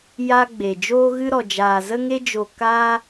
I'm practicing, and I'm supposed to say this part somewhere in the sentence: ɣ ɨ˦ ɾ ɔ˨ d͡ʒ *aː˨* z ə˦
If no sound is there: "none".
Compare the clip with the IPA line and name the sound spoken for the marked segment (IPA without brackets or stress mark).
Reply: aː˨